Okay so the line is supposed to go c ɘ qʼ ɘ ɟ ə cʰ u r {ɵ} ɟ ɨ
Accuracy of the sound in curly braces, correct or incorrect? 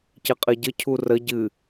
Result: incorrect